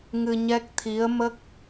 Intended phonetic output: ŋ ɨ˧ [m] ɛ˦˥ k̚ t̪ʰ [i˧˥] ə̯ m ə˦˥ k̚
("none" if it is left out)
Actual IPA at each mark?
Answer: ɲ, i˧˥

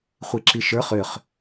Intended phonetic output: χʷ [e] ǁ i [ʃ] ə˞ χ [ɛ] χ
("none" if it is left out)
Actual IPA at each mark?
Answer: i, ʃ, ʏ

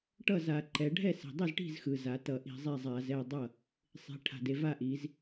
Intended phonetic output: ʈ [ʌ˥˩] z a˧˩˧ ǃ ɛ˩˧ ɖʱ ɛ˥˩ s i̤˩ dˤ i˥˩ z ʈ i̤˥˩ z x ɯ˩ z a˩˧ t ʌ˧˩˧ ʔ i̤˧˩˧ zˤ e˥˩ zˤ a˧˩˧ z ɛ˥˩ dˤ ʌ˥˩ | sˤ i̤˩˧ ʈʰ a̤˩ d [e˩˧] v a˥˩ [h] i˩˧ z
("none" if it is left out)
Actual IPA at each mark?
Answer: ʌ˥˩, e˩˧, ʔ

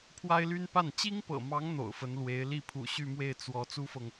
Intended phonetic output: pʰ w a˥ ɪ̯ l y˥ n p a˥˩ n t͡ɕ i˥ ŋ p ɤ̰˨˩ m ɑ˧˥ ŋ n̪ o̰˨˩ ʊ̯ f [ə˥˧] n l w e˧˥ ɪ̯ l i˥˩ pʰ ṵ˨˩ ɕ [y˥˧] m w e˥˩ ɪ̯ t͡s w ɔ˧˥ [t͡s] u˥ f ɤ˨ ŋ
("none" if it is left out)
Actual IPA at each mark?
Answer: ə˧˥, y˥˧, t͡s

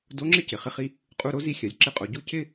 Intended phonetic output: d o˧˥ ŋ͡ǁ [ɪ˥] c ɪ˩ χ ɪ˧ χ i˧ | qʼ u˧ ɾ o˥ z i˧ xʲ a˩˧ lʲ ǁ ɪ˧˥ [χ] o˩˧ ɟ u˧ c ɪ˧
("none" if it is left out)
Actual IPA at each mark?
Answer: ɪ˥, qʼ

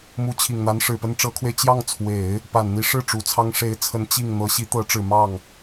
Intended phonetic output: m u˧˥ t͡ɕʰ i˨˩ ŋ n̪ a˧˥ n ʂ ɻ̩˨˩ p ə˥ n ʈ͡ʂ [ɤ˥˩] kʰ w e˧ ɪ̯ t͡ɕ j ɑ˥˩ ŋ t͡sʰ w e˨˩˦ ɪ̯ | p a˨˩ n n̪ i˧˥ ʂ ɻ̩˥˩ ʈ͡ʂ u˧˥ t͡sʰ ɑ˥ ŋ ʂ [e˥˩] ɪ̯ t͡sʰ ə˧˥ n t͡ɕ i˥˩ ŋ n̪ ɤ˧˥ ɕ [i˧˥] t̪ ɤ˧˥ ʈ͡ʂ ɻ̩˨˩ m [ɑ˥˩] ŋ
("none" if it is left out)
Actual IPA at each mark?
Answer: ɤ˧˥, e˧˥, i˧˥, ɑ˥˩

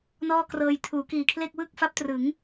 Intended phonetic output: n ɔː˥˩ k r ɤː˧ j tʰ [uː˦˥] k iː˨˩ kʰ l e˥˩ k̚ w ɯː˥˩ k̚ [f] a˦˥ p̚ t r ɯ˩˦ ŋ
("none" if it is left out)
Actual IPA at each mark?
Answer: uː˩˦, f

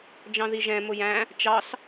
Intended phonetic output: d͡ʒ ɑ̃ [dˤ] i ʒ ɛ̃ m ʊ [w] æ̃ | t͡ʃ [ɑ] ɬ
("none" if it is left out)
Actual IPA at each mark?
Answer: ð, j, ɑ

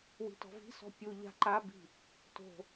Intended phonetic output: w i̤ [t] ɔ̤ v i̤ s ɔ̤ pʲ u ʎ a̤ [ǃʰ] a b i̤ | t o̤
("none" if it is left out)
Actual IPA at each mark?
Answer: t, ǃ

